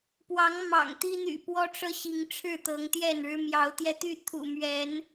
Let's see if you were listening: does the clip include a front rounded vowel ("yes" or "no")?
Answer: yes